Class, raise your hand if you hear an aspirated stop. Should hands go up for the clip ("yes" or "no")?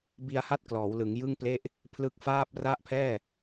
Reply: yes